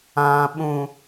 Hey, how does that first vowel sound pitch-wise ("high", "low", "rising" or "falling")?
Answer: low